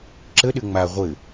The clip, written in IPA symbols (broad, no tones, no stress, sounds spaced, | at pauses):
ǁ ə ɗ ɘ ŋ͡m a ʁʷ ɘ